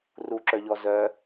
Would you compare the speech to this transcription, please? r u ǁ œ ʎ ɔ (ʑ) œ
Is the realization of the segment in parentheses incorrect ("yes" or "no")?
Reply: yes